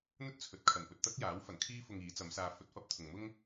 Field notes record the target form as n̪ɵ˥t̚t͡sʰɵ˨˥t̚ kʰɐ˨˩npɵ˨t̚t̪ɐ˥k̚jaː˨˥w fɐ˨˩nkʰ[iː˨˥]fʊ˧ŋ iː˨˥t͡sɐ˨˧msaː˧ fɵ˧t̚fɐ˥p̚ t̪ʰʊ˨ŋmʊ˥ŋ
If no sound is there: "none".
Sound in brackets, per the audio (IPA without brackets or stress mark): iː˥